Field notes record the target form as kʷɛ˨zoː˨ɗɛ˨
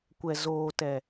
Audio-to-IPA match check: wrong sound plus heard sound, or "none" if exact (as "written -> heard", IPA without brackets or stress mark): ɗ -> t